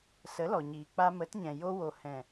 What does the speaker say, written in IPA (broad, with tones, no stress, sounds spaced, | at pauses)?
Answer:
s ə˨˦ l ɔ˨ ɲ iː˨ k͡p a˧ m ə˨˦ t ɲ ɛ̃˨ j o˧ w o˨ h ɛ̃˨